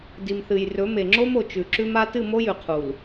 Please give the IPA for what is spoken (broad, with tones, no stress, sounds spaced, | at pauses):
d i˨ m θ ɨ˨ j r ɵ˨˦ m e˨ ŋ͡ǁ o˦ m o˨ t͡ʃ ʉ˨ ǁ ʉ˦ m a˦ t ɨ˦˨ m o˦ j ʉ˨ qʰ u˨ l